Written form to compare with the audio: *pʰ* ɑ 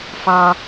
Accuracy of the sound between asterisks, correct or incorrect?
incorrect